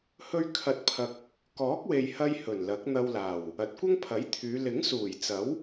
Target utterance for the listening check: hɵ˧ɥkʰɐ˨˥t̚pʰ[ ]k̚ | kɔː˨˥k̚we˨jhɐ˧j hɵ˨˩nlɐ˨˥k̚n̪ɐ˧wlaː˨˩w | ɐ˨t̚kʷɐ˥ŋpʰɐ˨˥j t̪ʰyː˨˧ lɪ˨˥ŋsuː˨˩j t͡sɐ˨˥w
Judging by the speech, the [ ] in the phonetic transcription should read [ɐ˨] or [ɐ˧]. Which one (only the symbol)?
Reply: ɐ˨